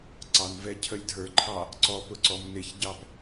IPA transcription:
ǀ ɑ n v ɛ cʰ ə lʲ dʱ ə˞ ǃʰ ɑ | ǀ ɔ p ʊ ǀ ɔ m n ɪ ç ɟ ɑ p

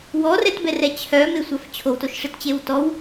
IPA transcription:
w ɔ r ɛ t b ɛ r ɛ t͡ɕʰ œ m e sʷ a f t͡ɕʰ o w t o ʃ ʂ e t t͡ɕ e w t ɔ w

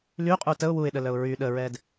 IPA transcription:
l y qʼ u t ə ʊ̯ w u ɪ̯ ɗ ə l œ ʊ̯ ɹ y ɗ ə ɹ ɛ d

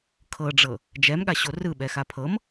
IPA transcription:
kʰ ɤ ɖ͡ʐ ɤ | d͡ʒ ɛ m ɠ a ɕ o r ɯ ɓ ɛ x a pʰ ɤ m

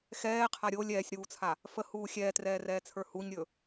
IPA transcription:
x ɛː qʰ a ɾʲ o lʲ ɛː sʲ ɾ uː t͡sʰ a | f ə h uː xʲ ɛː t r ɛː r ɛː t͡sʰ ə˞ h u ɲ ɾʲ ɵ

